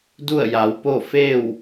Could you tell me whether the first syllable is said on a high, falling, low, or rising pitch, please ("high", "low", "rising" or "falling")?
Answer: falling